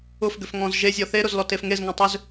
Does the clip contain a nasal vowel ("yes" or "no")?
yes